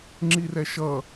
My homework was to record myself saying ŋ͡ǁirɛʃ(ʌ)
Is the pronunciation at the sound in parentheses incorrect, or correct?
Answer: correct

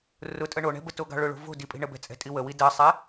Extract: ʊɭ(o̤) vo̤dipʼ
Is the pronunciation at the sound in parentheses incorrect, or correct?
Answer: correct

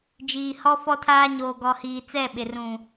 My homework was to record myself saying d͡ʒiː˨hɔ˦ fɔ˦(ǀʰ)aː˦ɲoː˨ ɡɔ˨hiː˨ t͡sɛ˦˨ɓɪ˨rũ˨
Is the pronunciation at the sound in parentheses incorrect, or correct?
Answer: incorrect: tʰ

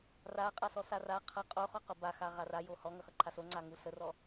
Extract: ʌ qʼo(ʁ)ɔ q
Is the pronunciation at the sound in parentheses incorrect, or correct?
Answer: incorrect: χ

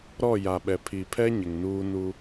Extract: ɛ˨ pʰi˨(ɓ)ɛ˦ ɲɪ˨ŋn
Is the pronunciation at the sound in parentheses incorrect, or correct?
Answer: incorrect: pʰ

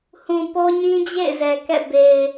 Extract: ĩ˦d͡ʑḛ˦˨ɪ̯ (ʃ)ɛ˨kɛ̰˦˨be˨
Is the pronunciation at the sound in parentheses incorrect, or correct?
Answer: incorrect: z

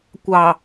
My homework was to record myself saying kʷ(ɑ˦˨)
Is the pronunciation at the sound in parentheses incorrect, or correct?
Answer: incorrect: ɑ˨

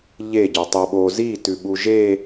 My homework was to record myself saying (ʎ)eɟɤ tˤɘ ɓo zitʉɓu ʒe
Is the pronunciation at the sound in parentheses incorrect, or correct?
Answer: correct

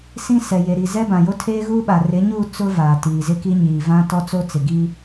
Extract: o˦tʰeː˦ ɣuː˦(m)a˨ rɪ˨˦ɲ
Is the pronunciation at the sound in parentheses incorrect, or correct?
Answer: incorrect: ɓ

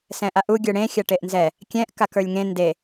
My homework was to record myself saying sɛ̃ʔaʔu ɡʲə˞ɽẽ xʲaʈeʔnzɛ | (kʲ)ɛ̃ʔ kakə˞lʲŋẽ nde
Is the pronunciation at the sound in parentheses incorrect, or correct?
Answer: correct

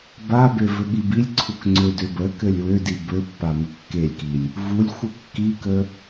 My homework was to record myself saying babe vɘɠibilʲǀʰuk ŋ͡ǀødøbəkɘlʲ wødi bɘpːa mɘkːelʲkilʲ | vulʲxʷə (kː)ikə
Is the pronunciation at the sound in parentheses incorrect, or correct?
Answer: correct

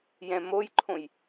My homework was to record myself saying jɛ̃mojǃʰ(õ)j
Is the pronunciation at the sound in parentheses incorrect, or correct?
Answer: correct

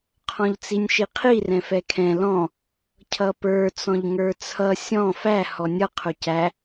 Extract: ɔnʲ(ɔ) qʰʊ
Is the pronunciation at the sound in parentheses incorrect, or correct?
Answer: incorrect: ʌ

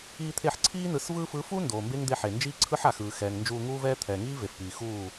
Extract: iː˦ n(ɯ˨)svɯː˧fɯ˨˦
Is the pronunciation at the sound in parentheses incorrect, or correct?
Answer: correct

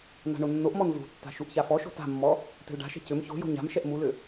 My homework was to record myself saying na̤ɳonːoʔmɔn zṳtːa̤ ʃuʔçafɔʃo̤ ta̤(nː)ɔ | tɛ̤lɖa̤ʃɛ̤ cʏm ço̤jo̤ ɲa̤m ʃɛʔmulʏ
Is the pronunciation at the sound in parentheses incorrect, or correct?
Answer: incorrect: mː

